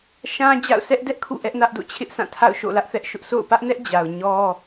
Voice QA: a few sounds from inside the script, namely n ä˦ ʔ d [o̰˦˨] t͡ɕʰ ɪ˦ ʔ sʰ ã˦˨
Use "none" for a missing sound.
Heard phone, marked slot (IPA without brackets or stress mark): o̰˦˨